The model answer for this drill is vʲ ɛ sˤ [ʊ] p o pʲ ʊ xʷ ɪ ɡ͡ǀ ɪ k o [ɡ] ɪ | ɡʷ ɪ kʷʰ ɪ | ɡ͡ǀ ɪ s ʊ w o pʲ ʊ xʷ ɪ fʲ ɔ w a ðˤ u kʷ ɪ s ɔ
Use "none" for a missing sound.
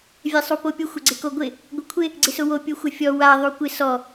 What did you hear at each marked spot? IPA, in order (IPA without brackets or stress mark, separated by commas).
u, ɡʷ